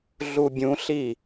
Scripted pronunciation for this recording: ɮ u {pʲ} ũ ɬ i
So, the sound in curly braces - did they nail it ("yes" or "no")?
no